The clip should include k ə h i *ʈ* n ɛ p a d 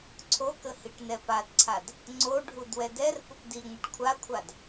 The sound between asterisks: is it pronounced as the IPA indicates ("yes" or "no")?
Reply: yes